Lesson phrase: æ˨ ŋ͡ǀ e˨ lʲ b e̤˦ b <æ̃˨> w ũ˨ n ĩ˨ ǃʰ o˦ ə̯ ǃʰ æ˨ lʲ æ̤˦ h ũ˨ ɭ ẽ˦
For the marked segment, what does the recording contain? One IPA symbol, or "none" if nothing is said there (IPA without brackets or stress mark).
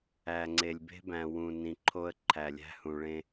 æ̃˨